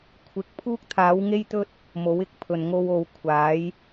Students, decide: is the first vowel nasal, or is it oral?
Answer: oral